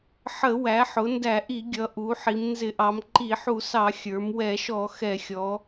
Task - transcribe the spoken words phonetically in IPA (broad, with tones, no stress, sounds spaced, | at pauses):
ħ ə˧˩˧ w æ˩˧ ħ ʊ˩˧ n d æ˧˩˧ ʔ i˧˩˧ ɡʲ ʌ˩˧ ʔ u˩˧ ħ i˩˧ m n z ɪ˧˩˧ ʔ ɑ˩˧ m ǃ i˧˩˧ ħ u˧˩˧ s ɑ˧˩˧ xʲ ə˞˩˧ m w ɛ˧˩˧ ʃ ɔ˧˩˧ x ɛ˧˩˧ xʲ ɔ˩˧